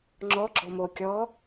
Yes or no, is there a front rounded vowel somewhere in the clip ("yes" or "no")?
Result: no